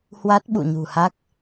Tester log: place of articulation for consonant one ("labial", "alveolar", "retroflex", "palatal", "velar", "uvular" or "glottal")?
glottal